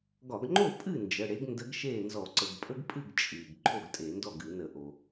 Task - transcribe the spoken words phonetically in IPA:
ɡɒ˧˩˧ɡŋ͡ǃo˥˩ pʼɨ˥˩ nd͡ʒə˩˧˩ɽe˨˥ɡ ndə˨˥ɡ ʃeː˥˩nzɔ˧˩˧ ǀə˩ɡpʼə˦ɡpʼɨ˥˩ɡ t͡ʃʼɨː˩ɡ ǃʰo˥˩ɡtʼe˧˩˧ndɔ˥˩ɡ ɨ˧˩˧nə˧˩˧ʔo˩

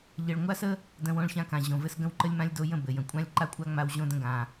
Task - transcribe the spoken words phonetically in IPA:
ʎɘ˨ɭŋʷa˦sə˦ | də̃˦wõ˦ɭ çã˦kã˨ ʑõ˨vɘ˦s ɡə̃˦wǃə˦lʲmã˦lʲ do˨jə̃˦˨ bɘ˨jə̃˨ kʷʼã˦lʲǃa˦kʷʼa˦ŋ͡ma˨w ʑõ˦də̃˦ɡã˨

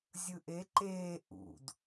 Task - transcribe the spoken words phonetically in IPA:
zʲɯʔe ǃeː ʔṵd

